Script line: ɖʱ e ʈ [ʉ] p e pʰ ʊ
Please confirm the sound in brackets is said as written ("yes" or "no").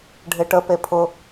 no